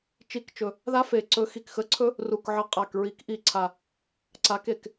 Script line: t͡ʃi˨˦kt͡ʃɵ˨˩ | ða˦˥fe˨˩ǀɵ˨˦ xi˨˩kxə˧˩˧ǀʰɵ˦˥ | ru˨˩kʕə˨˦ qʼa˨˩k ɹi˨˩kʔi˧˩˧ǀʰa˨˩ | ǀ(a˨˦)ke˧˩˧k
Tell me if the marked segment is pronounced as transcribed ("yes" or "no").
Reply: yes